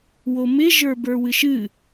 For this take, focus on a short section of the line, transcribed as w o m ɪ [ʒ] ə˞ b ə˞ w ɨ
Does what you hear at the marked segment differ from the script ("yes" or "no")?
no